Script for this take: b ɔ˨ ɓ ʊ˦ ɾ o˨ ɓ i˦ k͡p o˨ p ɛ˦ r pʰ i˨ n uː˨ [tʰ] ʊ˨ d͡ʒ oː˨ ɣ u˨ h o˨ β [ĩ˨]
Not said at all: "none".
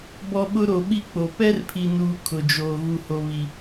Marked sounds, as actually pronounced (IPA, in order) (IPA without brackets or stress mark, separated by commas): kʰ, i˨